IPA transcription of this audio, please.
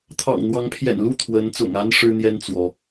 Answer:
t̪ʰ ɑ̰˨˩ ŋ n̪ w ɑ˨˦ ŋ pʰ j ɛ̰˨˩ n l u˥˨ t̪ʰ w ə˨˦ n t͡s ʊ̰˨˩ ŋ a˦ n ʂ ɻ̩˦ n̪ j ɛ˦ n t͡s w ɔ˨˦

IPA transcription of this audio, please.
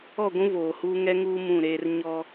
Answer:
ɔ˦˨ ɡʷ ũ˦ v oː˨ h uː˦ ŋ ɛ˦ ŋ uː˦ m ũ˦˨ ɾ eː˦ r ɲ ɔ˦

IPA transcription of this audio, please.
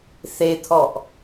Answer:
θ e t̪ʰ ɔ ʔ

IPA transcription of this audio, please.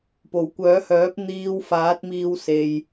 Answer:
p o˨˩ w kʷ œː˨˥ h œː˨˥ p̚ n̪ iː˧ w f aː˨˥ t̚ m iː˧ w s e˧ j

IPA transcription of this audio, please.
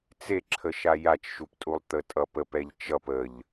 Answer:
t͡s e ǁʰ ə ʃ a j a t͡ʃ ʃ u p tʼ u lˠ t̪ ə tʼ ʌ p ə p ɛ ʎ t͡ʃ ʌ p ə ʎ

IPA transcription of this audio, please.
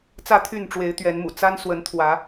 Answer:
t͡s ä˥˨ t̪ʰ y˥˨ n ʈ͡ʂ w e˨˦ ɪ̯ t̪ ɥ ɛ˨˦ n m ṵ˨˩ t͡s a˦ n s w ə˨˦ n t̪ʰ w ä˨˦

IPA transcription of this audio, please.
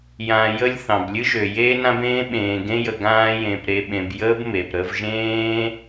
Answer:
j ã˨ j ə˧ lʲ θ ɑ̃˨ b lʲ ɨ˦ ʒ ø˨ j eː˧ n ã˧ b ẽː˧ ɓ ẽː˨ ɡ ẽ˧ j ə˨ ɡ ãː˧ j ẽ˨ p ɾ e˧ ɓ ẽ˧ b j əː˦ b m e˨ p ɾ ə˧ v ʒ ẽː˦

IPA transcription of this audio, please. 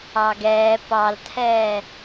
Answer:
ɑ ɡ ɛː p ɑ l tʰ ɛː

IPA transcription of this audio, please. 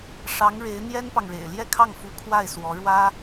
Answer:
ʂ ɑ˧˥ ŋ ɻ e˧˥ ɪ̯ n̪ j ɛ˥ n p ɑ˨ ŋ ɻ ḛ˨˩ ɪ̯ l j ɛ˥˧ kʰ ɑ˥˩ ŋ f u˧˥ kʰ w a˥˩ ɪ̯ s w ɔ˧˥ ɻ w ä˥

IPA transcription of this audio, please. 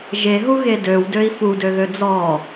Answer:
ʒ e ɦ u ɣ e d ø w d ø i̯ f u d ø ɣ ø d͡z ɔ

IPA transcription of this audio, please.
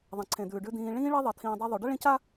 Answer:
ðˤ ɐ̃˩ ǀʰ ẽ˩ d̪ ʉː˩ ɖ ʉ˨ d̪ ĩː˨ ɭ ĩː˦ ɭ e˦ ðˤ ɐ˨ t̪ʰ ĩː˨ dˤ o˦ ðˤ u˨ ɖ ɐ˥ ɭ ĩ˦ c a˥

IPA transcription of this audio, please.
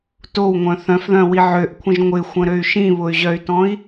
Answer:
t o w ŋʷ œ̃ θ œ̃ f ð œ̃ w i ʕ ø ʔ kʷʰ ə̃ ʒ ŋʷ ɪ xʷ ə̃ ɾ ø y̯ ʃ ĩ β ʊ y̯ ʑ œ y̯ t ɔ̃ i̯

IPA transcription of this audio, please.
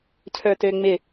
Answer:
cʰ ə˞ t ø ŋ͡m ɪ

